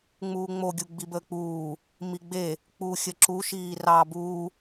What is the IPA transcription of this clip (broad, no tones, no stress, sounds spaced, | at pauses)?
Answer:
ŋ͡m uː ŋ͡m o ɡʲ u ɡ͡b i b əː k͡p uː | m i ɡ͡b e | k͡p uː xʲ ə ǁ u ʃ iː r ɑ b uː